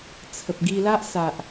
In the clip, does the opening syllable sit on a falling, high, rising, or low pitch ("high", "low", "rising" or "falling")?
low